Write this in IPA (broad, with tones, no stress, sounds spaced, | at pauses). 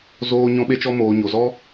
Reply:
z oː˧ ɲ ɔ̃˧ ɓ e˧ t͡ʃ ɔ˧ m oː˨ ɲ o˨ z ɔ˧